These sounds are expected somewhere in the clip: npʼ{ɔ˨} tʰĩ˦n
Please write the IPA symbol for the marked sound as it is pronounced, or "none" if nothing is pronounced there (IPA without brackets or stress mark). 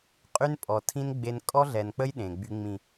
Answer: ɔ˨